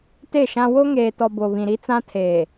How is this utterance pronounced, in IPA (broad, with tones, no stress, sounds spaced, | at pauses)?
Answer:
t e˦˨ ʃ ã˦ w o˦ ŋ eː˨ t ɔ˨ b o˨ β ĩ˨ ɾ i˦ t͡s ã˦ tʰ eː˨